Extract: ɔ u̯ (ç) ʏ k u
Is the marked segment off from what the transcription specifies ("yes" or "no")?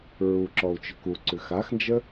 yes